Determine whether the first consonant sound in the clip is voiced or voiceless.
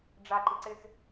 voiced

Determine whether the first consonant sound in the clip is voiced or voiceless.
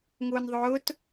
voiced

